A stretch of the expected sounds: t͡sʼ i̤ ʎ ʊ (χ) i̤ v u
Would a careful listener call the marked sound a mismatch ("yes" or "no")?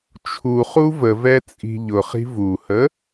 no